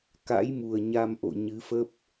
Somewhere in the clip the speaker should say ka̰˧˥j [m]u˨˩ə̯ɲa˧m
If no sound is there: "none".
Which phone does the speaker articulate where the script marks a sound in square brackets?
m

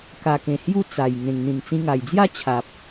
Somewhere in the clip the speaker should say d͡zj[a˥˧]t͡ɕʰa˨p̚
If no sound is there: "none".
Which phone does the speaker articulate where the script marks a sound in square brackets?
a˥˧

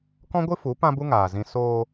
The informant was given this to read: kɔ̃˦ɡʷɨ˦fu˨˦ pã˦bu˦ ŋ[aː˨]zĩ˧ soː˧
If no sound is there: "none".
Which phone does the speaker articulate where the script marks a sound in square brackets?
aː˨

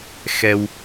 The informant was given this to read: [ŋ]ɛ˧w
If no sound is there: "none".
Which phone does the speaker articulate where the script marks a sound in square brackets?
x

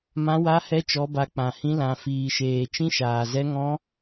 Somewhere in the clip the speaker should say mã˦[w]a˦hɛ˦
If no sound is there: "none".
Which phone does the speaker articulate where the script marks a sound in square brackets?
w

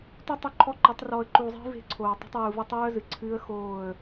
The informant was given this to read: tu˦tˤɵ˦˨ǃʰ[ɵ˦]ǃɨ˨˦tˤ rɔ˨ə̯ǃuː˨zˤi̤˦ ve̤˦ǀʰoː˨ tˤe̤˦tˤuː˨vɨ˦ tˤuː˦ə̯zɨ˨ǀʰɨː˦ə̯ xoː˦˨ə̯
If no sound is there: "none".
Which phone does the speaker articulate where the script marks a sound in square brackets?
ɔ˦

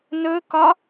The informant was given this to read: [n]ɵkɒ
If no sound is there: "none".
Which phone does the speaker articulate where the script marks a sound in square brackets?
n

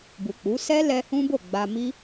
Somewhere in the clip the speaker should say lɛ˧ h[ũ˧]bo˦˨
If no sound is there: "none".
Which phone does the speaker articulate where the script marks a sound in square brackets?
ũ˦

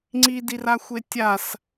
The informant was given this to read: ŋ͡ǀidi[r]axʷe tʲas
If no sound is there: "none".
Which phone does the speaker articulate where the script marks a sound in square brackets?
r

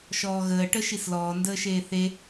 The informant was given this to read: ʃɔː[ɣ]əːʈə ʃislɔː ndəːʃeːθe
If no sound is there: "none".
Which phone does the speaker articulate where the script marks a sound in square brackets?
ɣ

